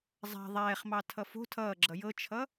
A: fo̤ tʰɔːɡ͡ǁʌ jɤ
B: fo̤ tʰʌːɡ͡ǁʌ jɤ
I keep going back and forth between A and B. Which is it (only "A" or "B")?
B